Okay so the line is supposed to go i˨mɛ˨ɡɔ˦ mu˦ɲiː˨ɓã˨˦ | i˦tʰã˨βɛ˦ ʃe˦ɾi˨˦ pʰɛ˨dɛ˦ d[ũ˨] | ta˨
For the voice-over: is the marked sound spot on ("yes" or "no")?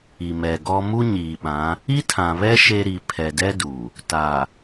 no